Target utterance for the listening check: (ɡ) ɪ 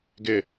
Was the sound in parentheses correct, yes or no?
yes